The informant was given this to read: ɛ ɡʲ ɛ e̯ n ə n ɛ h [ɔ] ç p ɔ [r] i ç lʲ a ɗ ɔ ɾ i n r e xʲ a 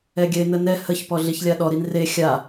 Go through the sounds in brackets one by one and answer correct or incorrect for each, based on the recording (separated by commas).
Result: incorrect, incorrect